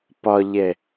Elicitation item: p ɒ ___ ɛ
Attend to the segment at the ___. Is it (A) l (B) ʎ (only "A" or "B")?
B